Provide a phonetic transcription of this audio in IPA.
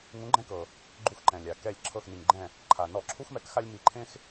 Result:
ŋũ˨˥ɡ͡ǃɛ̃˦kɤ˩ | ɡ͡ǃu˧˩xǃɛ̃˩lʲa˩ kɛ˧˩lʲ ǁʰɤ˧˩xni˩ŋɡ͡ǃɛ̃˧˩ | ǃʰa˩ nɔ˧˩˧ǁʰu˦xmɛ˨˥k xa˦lʲmi˧˩˧ǃʰẽ˦x

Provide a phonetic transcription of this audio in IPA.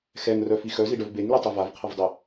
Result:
xɛŋrœfi xœziɖœv beŋlytˤe vavqʰəvdˤe

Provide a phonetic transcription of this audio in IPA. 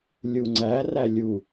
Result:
lʲuŋ͡ǀæ rælʲu

